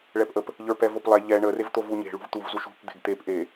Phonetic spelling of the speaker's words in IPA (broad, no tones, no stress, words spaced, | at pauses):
ɭɛpʔəp | ʎə˞pɛvoplˠɛ ʎɛ ɳə revt̪ovuɲe̤ ɭṳvt̪uv zuʃṳp d̪e̤ɡt̪ep ʔe